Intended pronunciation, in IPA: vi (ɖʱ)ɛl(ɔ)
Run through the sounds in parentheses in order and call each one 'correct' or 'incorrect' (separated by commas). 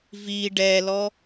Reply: incorrect, correct